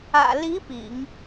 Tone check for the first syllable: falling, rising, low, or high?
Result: low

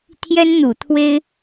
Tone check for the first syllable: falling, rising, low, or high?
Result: high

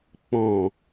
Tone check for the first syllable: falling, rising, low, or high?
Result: low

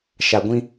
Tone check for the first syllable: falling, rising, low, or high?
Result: low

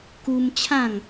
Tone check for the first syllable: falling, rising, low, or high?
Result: high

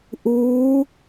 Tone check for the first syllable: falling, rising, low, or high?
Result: rising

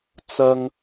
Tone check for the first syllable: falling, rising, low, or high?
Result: high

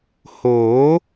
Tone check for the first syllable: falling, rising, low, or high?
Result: rising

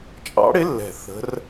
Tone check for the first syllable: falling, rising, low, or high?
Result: rising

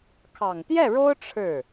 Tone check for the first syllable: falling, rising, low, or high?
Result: low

